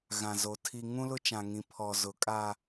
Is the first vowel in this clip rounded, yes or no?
no